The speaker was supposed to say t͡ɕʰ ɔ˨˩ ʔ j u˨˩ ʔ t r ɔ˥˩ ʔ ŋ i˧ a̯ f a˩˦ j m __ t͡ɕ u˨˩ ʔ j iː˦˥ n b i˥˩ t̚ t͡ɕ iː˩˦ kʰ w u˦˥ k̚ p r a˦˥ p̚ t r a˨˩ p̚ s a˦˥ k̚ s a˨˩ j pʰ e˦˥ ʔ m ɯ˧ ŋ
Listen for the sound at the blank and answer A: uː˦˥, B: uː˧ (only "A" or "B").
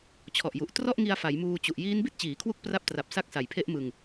B